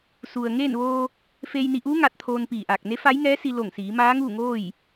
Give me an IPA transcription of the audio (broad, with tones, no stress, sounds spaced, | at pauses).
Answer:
s u˩ ə̯ ŋ eː˥˨ n ʋ oː˧ | f eː˧ j n i˧ ʔ uː˧˥ ŋ a˧ t̚ t̪ʰ oː˧ n p iː˧˩ ʔ aː˧˩ k̚ n e˧˥ f a˧˥ j ŋ ɛː˧˥ s i˧ l o˧˩ ŋ s iː˩˧ m aː˧˥ ŋ uː˥˨ ŋ oː˥˨ j